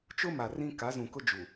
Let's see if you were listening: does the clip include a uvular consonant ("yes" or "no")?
no